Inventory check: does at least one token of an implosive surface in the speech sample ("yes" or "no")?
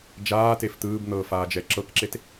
no